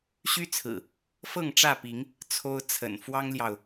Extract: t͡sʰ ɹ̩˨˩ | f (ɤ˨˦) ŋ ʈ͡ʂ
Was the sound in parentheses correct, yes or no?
no